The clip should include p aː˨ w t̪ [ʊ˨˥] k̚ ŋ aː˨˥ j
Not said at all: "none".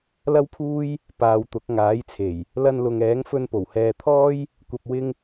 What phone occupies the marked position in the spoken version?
ʊ˨˥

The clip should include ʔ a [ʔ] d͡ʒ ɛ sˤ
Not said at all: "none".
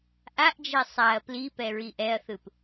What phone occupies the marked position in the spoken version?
ʔ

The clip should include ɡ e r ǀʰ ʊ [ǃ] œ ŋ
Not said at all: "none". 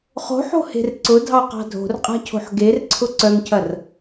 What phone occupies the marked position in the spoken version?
ǀ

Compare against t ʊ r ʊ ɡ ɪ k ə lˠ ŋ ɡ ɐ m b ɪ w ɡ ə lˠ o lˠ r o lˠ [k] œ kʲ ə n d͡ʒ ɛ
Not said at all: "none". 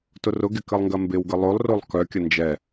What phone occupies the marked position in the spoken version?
k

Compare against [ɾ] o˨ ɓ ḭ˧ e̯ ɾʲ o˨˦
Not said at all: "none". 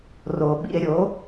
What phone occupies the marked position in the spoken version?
r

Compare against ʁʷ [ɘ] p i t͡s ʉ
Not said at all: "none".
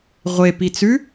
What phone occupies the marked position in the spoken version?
e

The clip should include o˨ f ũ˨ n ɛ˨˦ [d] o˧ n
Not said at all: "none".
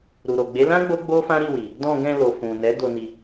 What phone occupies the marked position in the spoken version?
d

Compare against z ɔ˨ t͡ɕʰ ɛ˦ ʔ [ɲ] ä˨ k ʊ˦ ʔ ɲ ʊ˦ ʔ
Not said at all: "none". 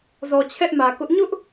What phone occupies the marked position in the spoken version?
m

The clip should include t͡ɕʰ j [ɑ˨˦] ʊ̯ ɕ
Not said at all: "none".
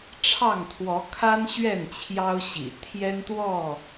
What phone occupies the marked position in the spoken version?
ɑ˦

